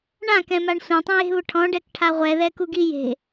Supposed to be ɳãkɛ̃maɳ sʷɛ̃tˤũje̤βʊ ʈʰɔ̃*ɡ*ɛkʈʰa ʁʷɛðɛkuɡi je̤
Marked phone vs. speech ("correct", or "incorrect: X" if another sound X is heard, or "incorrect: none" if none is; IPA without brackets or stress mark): incorrect: ɖ